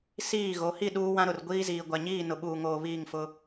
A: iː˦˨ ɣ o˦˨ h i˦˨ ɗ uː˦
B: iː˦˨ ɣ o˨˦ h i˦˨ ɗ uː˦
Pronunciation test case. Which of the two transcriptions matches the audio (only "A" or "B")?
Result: B